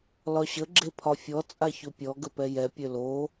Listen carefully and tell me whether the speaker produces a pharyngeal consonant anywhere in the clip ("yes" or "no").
no